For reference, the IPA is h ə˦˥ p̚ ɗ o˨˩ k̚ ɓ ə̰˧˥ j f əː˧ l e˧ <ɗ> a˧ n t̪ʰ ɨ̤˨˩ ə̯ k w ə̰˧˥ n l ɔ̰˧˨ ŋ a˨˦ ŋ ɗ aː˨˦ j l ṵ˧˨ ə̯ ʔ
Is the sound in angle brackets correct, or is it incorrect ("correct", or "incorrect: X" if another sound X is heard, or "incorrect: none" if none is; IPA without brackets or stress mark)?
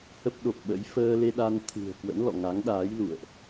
correct